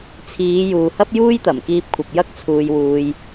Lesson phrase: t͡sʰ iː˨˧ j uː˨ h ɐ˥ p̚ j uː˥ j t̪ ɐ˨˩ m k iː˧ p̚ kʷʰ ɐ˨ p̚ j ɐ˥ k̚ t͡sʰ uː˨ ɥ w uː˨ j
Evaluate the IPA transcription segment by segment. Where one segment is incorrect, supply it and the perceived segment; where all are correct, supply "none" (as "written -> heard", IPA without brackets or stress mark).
ɥ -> j